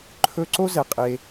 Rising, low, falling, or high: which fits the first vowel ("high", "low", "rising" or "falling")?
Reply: high